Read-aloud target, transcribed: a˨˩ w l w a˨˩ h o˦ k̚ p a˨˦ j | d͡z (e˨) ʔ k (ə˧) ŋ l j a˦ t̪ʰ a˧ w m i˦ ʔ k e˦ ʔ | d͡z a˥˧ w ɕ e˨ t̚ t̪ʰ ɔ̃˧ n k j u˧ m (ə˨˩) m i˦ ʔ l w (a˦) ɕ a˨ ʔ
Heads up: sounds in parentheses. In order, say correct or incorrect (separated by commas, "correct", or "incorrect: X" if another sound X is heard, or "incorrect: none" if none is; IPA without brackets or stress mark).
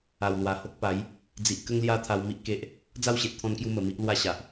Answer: incorrect: i˨, incorrect: ə˦, correct, correct